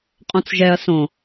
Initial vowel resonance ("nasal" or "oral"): nasal